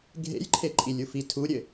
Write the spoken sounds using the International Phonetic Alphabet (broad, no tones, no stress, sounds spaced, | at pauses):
ɡʱ ḛ j ǃʰ e ǃʼ i lʲ u f i tʰ u ɾʲ ɘ